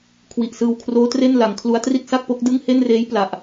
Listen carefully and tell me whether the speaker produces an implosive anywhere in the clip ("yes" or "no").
no